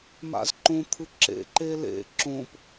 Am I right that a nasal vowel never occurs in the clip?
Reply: no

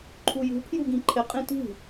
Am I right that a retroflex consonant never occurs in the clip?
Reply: yes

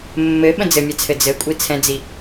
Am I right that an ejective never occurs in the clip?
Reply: no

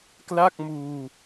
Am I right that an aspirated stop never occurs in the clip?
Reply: yes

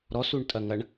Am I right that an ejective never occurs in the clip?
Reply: no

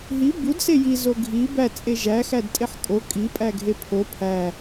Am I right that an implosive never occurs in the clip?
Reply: yes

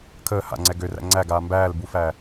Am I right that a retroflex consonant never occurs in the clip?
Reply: yes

